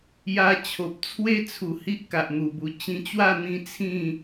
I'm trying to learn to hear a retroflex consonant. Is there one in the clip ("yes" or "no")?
no